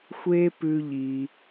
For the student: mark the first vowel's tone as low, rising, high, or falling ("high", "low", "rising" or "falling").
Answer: high